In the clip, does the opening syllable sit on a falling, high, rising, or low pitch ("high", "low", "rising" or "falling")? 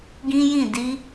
high